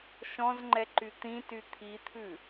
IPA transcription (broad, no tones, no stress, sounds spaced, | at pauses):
ʃ ɔ̃ z ŋ͡ǃ ɛ ǃ y t̪ ĩ t y t̪ʰ i t̪ʰ ʉ